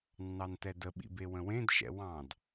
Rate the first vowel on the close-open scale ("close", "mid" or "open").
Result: open